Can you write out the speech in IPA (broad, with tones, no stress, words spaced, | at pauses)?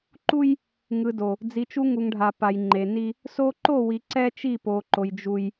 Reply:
ǃu˦j | ŋɯ˨do˨ | d͡zi˨t͡ʃu˦ŋu˨ŋɖʱa˨ pa˨jŋ͡ǃe˨ ni˦ | so˦ ǃo˦˨wi˨ ǀɛ˦t͡ʃi˦˨po˨ǃo˨j d͡ʒu˦j